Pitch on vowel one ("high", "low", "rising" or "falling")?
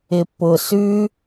low